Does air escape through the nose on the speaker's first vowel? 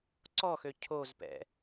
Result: no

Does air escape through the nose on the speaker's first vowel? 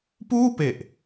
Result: no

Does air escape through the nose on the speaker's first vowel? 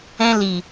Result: yes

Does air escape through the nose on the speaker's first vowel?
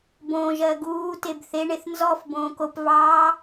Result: yes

